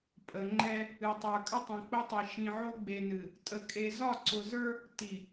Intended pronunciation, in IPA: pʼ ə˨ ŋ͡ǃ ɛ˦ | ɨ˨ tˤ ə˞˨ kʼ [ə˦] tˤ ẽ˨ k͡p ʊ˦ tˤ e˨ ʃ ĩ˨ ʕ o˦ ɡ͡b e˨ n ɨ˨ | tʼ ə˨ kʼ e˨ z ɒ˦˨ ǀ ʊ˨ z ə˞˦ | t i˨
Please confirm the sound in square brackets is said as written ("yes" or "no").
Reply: yes